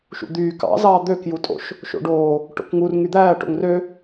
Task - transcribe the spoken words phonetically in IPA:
ʃṵd̪yː kɑ̰zɑː d̪økjutʼo̰ʃ | ʃo̰ɖoː | ʈo̰kŋur ŋyd̪æːʈo̰ŋ rø

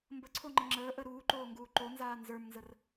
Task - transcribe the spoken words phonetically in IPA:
mbəǀʰoŋ͡ǃə ŋ͡ǁəːʔə ɾuːǃoːŋɡuː ǃonzaː nzə˞mnzər

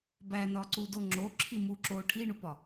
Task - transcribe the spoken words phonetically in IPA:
bænɒǀudo ŋ͡ǁoǁʰimu ǁo ʈʰiɳupɒ

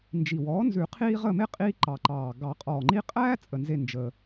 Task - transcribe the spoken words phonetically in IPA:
nd͡ʒi˨˩wɔː˩˥nzʉ˨˩˦qʰiː˦ ʁə˦˨me˦ qʼiː˦ǃɑ˨˩ǃɑː˨˩ ɡɑ˨˩˦qʼɔː˨˩ŋ͡ǃi˦ qʼæː˦ t͡sʼə˨˩nze˦˨ nd͡ʒəː˦

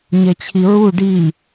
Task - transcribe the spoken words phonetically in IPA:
ɲet͡ɕʰiɹu ɖi

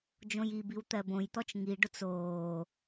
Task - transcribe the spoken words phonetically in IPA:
d͡ʒõjibiw t̪ɜbõjt̪ɔt͡ʃ ŋiɖʊt͡s oː

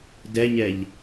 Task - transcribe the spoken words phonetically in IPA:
dɛɲɛʎ

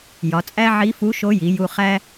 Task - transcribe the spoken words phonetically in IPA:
jɒ˩˧t͡sʼæ˥ʕi˧˥fu˧˥ ʃo˧˥ji˩˧ju˧ χæ˥

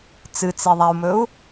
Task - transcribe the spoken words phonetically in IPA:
t͡sɨt͡seðˤau̯mɵu̯

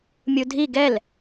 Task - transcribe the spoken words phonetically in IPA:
mʲudʱi ɡɛl

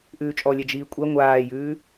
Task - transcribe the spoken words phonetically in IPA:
ʔʉːt͡ʃʼɔlʲɛ d͡ʒiːkʷʼɛ ŋʷaːjʉː

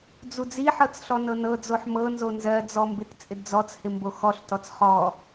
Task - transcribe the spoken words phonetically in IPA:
d͡zud͡ziħɤt͡s ɬɔnɤnɤd͡zoħ mɤnzo nzɜd͡zɔ mbɪtt͡sʼɪdd͡zɔt͡shɪ mboxɔɬtɔt͡s χɔ

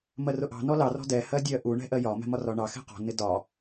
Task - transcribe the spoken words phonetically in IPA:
mɜrʊʔɑ̤ nɔlɑ rɔ̤dɛ hɜdʲɜ ʔu ɳɛ̤ʔɜjɒ mɛ̤mɒrɒɳɑ xɛ̤qɔ̤ nɪdɒ

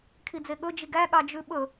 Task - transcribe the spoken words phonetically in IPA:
kʰid͡zeɠɵ d͡ʒiɡæ ɠɑd͡ʒʉɓɵ

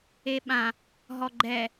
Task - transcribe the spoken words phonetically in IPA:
eɓã | ɦɔɡ͡ǃɛ

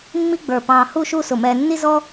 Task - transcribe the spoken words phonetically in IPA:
mːi˥ɡ͡bə˞˧˩ pɑ̃ː˧hu˥˧ʃu˥˧ sʊ˧˩mɛː˧nːi˥ zɔ˥

